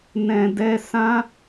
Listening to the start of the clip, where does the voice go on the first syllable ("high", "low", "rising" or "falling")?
low